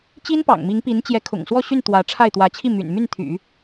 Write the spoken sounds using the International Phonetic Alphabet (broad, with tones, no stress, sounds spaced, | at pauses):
t͡ɕ i˥ n p ɑ̰˨˩ ŋ m i˧˥ ŋ p i˧˥ n t͡ɕ j ɛ˧˥ kʰ ʊ̰˨˩ ŋ s w ɔ˥˧ ɕ y˥˩ n t̪ w ä˧˥ ʈ͡ʂʰ a˥˩ ɪ̯ t̪ w ä˧˥ t͡ɕʰ i˥˩ m y̰˨˩ n m y˥˩ n t̪ʰ y̰˨˩˦